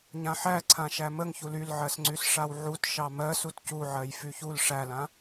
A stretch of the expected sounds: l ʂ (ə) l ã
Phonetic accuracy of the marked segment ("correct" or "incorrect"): incorrect